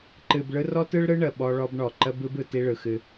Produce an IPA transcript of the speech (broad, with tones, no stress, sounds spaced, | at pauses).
ǃ ɨ˨ b ɭ ɯ˦ r ɔ˦ t ɯ˦ ɭ ɾ ɯ˦ ɳ ə˨ ɓ ɔ˦ ɭ ɔ˦ b ɳ ɔ˨ ǃ ə˦ b ɯ˦ b ɯ˨ t i˦ ɭ ɯ˨ x ɨ˦